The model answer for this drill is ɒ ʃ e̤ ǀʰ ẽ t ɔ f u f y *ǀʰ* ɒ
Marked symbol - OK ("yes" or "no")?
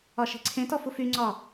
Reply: no